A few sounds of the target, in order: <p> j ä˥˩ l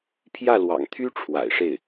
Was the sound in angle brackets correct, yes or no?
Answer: no